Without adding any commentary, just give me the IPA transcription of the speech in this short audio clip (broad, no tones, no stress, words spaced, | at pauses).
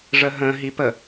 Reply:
ʐəɦə̃ ɦipə